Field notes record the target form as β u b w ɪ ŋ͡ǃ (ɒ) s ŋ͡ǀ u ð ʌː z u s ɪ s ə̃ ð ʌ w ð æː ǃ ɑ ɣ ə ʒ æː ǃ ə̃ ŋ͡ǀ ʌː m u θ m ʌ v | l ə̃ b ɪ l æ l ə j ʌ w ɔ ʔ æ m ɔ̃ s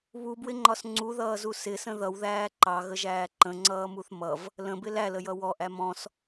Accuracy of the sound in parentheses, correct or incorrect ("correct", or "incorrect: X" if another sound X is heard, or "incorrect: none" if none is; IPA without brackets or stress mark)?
correct